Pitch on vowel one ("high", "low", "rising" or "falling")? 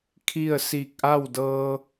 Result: falling